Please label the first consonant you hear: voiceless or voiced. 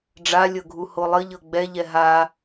voiced